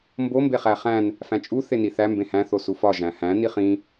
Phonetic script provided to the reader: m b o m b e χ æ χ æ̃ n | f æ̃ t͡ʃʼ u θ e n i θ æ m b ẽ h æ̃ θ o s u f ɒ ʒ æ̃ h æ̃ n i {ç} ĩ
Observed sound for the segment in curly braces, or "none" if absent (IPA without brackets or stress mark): χ